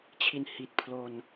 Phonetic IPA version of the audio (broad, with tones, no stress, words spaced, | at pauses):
t͡ɕʰi˧nhi˨˩t̚ pʰlo˧n